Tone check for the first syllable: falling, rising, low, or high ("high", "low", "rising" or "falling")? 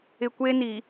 low